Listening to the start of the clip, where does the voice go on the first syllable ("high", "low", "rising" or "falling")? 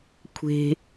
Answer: low